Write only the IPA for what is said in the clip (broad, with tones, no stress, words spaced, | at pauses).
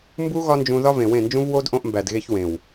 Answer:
mbu˦ ɣɒ˦nd͡ʒũ˧ ðɒ˦vẽ˨wẽ˦˨nd͡ʒũ˦v wo˦d ʔõ˧ʔmbæ˨dɣe˧ç wẽ˨w